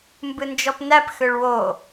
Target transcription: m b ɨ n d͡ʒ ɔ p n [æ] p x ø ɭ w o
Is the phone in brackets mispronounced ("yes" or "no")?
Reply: no